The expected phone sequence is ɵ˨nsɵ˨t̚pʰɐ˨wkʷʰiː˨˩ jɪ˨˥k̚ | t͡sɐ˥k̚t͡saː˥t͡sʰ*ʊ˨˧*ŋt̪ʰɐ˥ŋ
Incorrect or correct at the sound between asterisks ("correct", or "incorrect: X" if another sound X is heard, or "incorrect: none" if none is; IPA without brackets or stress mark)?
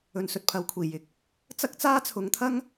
correct